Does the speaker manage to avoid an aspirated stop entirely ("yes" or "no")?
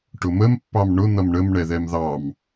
yes